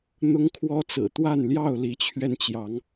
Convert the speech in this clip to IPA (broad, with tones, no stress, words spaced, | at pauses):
n̪ʊ˦ŋkʰwɔ˦t͡sɹ̩˨˩ t̪wa˥˨n ljɑ˥˨ʊ̯li˨˦t͡ɕʰɥɛ˧n t͡ɕjɑ˨˦ŋ